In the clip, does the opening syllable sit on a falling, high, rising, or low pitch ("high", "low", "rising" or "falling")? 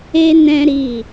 high